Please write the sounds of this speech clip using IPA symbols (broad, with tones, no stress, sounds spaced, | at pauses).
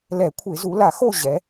l ɛ˧˩˧ kʷʰ ɪ˧˩˧ z u˩˧ l a˧˩˧ x o˦˨ ʑ ɛ˩˧